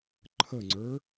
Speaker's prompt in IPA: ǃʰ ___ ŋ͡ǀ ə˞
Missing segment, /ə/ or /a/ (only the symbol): ə